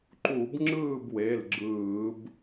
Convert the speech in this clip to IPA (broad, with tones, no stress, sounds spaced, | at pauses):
ǃ u˧˩˧ b ŋ͡ǁ ɯː˥˨ b w e˩˧˩ l ɡ͡ǁ ɯː˧˩˧ b